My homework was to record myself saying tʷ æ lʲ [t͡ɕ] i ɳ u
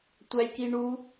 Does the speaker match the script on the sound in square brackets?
no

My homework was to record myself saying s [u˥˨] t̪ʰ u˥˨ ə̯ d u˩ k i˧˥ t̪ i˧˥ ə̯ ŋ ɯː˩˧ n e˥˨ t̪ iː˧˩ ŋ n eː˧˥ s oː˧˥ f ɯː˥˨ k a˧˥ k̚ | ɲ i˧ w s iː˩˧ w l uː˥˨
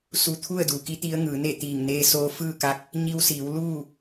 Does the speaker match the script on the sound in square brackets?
no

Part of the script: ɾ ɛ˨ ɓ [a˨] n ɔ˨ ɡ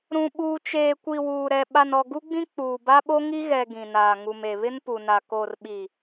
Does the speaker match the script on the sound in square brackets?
yes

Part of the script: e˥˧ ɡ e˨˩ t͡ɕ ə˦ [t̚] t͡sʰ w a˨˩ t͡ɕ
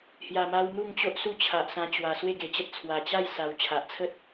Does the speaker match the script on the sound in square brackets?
yes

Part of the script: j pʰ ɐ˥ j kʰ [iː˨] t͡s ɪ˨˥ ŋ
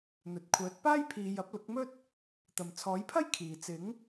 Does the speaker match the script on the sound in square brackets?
yes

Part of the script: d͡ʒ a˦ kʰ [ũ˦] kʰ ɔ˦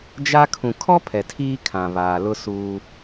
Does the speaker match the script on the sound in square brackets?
no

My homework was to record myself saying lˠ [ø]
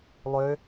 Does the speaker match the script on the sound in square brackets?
yes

